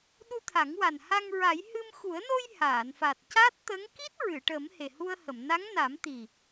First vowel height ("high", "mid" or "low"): high